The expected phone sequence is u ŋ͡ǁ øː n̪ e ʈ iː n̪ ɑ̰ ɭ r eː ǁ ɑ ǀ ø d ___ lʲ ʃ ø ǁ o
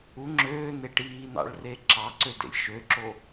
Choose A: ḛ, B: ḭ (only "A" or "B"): A